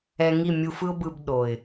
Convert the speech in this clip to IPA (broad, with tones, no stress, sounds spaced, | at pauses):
ɛ˧ ŋ i˦˨ mʲ u˧ f ɯ˦ ʊ̯ b ɯ˧ b ɗ o˨ ɪ̯